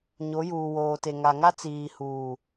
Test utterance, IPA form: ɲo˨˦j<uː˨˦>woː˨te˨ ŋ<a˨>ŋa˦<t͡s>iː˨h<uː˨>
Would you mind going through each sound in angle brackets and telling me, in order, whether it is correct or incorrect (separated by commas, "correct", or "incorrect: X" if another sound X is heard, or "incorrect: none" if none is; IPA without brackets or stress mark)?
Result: incorrect: uː˨, correct, correct, correct